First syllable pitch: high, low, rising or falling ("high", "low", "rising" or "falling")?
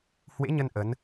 rising